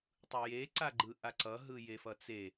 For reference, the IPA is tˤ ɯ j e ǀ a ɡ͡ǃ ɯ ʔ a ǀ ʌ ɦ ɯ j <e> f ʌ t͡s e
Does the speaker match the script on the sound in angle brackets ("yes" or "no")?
yes